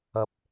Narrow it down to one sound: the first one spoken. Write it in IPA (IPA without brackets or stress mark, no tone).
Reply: ɐ